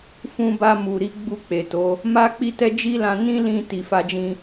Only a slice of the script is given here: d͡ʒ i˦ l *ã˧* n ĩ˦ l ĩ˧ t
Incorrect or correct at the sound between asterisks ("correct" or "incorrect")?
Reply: correct